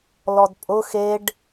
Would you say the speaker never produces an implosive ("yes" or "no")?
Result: yes